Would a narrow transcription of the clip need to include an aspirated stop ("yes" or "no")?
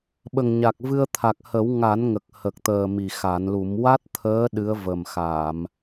yes